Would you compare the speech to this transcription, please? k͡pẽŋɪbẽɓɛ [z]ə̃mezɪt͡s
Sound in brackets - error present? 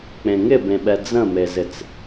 yes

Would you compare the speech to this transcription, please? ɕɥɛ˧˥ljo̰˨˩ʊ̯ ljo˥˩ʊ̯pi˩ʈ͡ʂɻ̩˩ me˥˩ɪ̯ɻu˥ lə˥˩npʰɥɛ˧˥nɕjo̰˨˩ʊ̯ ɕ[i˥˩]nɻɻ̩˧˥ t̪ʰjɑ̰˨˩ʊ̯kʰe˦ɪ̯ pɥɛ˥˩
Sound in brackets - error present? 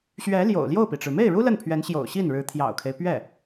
no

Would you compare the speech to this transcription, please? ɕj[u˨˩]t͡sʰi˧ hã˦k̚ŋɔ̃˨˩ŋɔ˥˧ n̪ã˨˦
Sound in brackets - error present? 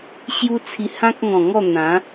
yes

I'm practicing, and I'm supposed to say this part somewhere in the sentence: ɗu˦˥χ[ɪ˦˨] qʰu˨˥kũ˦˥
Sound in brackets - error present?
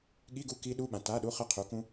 no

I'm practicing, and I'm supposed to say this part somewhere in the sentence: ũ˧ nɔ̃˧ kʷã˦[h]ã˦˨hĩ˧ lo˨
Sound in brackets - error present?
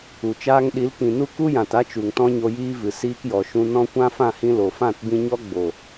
yes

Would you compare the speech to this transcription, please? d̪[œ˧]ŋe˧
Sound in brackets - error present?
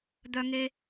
no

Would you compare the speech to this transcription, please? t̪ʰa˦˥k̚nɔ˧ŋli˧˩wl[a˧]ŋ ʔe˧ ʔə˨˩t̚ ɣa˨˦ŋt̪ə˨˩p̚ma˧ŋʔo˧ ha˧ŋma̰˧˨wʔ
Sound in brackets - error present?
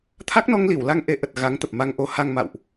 no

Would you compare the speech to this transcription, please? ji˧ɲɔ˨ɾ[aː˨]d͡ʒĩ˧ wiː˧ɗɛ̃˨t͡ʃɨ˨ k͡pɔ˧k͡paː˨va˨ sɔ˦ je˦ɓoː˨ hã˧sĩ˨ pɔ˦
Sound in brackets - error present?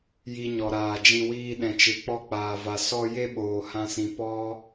no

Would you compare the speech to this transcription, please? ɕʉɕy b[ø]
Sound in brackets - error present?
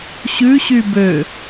no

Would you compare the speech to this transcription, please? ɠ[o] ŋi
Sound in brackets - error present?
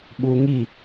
yes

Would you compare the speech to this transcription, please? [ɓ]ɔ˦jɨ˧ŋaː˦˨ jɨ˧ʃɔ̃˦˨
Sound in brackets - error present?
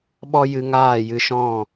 no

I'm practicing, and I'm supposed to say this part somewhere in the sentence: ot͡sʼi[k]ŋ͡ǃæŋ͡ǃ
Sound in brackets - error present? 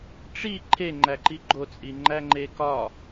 yes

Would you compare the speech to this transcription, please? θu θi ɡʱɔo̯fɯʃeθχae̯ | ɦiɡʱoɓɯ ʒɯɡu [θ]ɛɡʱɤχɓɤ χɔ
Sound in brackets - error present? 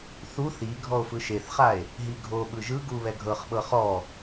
yes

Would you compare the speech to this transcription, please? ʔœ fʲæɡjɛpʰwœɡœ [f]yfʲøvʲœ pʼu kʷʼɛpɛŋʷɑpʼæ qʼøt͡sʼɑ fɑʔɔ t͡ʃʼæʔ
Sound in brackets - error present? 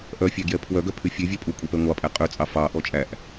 yes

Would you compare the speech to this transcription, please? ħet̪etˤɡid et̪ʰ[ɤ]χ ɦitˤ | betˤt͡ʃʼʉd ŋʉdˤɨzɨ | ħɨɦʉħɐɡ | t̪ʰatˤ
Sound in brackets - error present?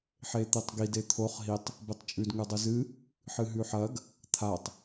yes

